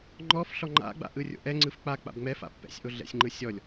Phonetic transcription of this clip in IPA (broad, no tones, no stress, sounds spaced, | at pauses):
ŋ͡ǃ ɔ f ɬ ɔ ŋ͡ǃ a̰ ɡ͡b a̰ ʔ ɯ rʲ o̰ ʔ ɛ ŋ͡ǀ ɯ f k͡p a k͡p a̰ b ŋ͡m ɛ f a̰ pː ɛ̰ sʲ ʔ o ɮ ɛ̰ sʲ ŋ͡ǃ ɯ sʲ ɔ lʲ